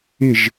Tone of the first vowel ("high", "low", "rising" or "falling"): falling